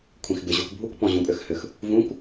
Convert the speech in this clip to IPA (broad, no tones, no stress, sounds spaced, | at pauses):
kʷʰ ĩ x b ɪ ʑ u k bʱ u k p ɔ̃ ʑ ũ pʼ ʏ x h ʏ x | v ũ k